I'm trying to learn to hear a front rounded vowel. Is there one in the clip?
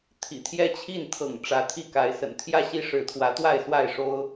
no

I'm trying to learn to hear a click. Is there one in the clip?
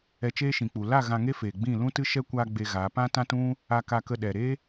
no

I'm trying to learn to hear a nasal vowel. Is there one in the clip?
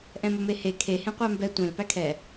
yes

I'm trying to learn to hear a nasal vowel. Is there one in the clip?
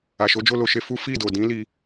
yes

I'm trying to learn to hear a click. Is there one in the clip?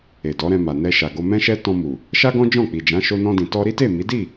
no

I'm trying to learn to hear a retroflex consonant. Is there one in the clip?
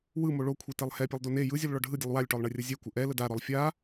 yes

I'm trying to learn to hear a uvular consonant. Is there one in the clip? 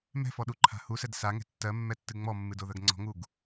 no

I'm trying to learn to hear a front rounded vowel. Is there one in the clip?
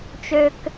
yes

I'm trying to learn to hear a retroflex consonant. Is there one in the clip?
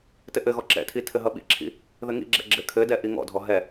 no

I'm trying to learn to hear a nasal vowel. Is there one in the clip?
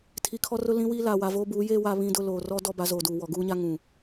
yes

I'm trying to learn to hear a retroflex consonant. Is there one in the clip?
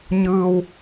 no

